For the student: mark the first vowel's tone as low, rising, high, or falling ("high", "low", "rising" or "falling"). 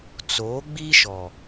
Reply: rising